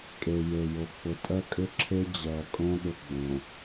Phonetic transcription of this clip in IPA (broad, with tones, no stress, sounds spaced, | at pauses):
kʼ e˨ j e˨ j o˨ k͡p ʊ˨ tʼ ɜ˦ kʼ ʏ˦ ǁʰ e˦ d͡ʑ ɜ˨ kʼ õ˦ ɗ ʊ˦ ɡ͡b õ˨